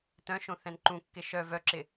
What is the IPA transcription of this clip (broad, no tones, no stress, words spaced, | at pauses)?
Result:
tœ̃ʃõ θɛ̃nǃũkːɪ ʃœ vœǁɪ